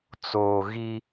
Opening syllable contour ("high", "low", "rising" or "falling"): low